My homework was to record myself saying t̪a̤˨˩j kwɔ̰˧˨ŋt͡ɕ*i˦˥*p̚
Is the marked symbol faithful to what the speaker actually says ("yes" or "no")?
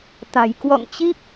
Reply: yes